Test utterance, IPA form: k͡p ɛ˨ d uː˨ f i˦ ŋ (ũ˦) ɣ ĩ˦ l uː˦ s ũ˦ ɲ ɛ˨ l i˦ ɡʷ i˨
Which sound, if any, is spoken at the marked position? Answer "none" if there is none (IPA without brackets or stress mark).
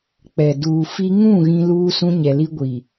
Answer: ũ˦˨